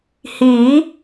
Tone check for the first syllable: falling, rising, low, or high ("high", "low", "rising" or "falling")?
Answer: rising